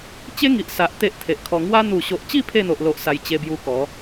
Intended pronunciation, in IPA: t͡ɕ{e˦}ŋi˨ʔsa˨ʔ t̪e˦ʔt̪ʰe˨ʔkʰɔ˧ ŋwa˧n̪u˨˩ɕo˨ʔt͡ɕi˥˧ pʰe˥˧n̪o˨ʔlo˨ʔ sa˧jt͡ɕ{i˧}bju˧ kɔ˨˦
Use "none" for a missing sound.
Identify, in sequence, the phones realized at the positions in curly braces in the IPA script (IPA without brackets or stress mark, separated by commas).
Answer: e˦, e˧